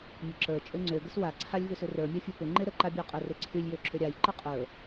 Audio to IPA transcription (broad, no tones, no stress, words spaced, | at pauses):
mʲəǁə˞ t͡ʃʼøŋ͡ǀø ɡəswa ǀʰalʲvʏsʏrə˞ mʲafʲə˞pʏ ŋ͡ǃeɾə ǃabʲə˞qʼə reǀʰylʲ jøǁʏɾʲaj ǃəqʼə˞